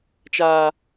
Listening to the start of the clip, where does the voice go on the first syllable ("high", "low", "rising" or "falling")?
high